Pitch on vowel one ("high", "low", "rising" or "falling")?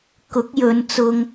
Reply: rising